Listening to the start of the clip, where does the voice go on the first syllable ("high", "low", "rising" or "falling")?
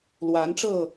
rising